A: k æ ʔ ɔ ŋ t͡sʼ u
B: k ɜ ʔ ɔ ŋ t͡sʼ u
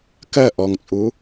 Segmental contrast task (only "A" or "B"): B